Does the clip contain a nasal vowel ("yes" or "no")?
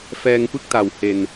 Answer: no